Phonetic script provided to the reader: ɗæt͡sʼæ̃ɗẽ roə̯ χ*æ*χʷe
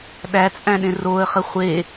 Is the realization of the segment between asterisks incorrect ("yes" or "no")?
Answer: yes